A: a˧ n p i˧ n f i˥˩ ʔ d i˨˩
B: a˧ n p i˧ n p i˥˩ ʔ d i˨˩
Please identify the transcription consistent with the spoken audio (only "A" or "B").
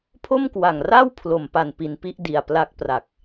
B